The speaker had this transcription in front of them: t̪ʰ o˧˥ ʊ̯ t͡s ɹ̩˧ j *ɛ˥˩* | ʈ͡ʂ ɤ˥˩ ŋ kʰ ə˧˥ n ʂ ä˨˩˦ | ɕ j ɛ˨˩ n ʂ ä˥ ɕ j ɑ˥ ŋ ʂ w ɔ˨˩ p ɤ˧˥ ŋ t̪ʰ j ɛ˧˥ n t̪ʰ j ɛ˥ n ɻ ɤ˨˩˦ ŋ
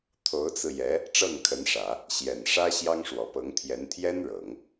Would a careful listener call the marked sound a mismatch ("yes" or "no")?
yes